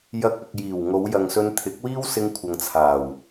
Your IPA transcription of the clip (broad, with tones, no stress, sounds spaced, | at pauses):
j ɐ˧ k̚ ɐ˨ k̚ j iː˨˩ w ŋ o˨˧ w j ɐ˨ ŋ s ɵ˧ n t̪ʰ ɪ˨˥ k̚ w iː˥ w s ɪ˧ ŋ kʷʰ ɐ˨ ŋ t͡sʰ aː˨˩ w